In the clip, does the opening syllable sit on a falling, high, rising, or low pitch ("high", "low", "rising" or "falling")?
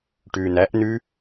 low